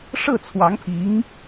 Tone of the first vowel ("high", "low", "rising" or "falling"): falling